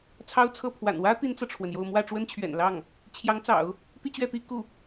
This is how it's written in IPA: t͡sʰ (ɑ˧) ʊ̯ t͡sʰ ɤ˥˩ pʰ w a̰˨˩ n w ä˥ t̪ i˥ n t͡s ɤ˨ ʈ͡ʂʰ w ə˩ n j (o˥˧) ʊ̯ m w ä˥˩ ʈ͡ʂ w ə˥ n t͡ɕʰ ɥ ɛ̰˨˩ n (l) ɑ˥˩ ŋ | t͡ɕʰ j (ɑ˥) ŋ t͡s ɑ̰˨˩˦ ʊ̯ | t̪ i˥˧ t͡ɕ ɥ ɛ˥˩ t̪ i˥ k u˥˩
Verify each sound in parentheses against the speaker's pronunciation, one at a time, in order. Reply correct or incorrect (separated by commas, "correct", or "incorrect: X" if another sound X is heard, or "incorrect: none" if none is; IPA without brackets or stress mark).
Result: incorrect: ɑ˥, correct, correct, incorrect: ɑ˧˥